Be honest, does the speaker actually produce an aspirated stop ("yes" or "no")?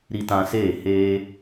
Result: no